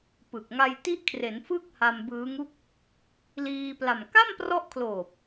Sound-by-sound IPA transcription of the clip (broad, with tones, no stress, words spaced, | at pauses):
pɯ˨˩k̚ ŋa˧jti˦˥ʔkʰre˩˦n fɯ˥˩k̚ha˧m bɯː˦˥ŋu˥˩k̚ | liː˧pla˨˩m ka˥˩mprɔ˦˥ʔkʰloː˨˩p̚